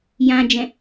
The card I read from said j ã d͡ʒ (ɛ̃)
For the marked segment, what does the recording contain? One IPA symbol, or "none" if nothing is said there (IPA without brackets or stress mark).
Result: ɛ̃